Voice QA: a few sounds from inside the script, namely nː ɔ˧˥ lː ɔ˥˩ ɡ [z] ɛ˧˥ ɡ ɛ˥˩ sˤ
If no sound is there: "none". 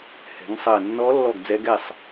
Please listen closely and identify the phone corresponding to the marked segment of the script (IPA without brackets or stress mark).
d͡z